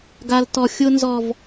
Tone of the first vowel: high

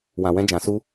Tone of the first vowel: low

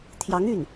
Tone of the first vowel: rising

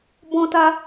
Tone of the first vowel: high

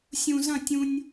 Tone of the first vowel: low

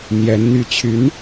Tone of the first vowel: rising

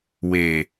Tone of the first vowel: low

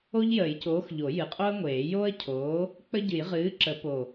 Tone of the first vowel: high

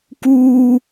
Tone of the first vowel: high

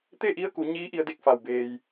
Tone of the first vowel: falling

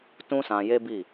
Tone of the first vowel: high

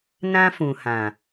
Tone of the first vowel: high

